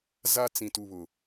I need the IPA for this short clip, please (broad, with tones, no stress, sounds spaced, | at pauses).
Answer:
z a˦ t͡s ĩ˦ t u˦ β ʊ˦